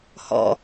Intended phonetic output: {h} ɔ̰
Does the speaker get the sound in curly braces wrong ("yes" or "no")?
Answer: no